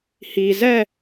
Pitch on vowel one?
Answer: low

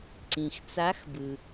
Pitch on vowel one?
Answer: low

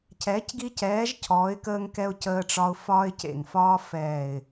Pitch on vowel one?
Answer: rising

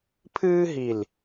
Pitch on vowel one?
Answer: high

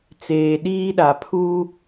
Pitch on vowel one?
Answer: low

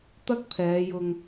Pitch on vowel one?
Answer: high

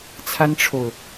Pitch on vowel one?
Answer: high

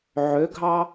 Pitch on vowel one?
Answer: rising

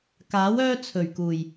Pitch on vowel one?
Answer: rising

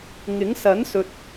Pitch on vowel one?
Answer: rising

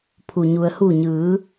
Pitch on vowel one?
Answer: low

